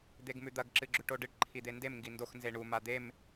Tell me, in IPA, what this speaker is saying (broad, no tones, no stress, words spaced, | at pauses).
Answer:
d̪eɡmʉd̪ɐɡ ǁɨɡ͡ǁʉʈoɖɨʈ ǃʰid̪endem ŋɡindox nzeɳu mad̪em